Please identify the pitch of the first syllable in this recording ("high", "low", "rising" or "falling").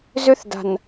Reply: high